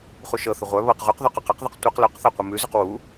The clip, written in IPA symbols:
χuʃɤθə ʁʷœ βɤq ʁʉqðɔq ɔqaqðɤq tʷɤq lœqθa qʷimʉzʉq wu

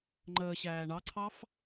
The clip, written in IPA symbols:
ŋ͡ǃəːɕæː ɳɑǀʰɑf

